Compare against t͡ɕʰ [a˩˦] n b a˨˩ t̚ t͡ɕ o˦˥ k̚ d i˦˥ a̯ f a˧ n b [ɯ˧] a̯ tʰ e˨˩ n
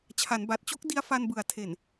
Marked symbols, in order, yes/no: yes, no

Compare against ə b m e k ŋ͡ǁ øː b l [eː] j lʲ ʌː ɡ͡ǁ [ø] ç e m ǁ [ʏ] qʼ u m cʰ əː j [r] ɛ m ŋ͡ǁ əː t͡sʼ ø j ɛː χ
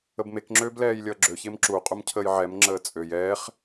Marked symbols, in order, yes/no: no, yes, no, no

